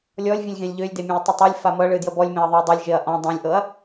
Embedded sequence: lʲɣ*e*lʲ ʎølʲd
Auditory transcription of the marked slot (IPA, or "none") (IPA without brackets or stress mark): ẽ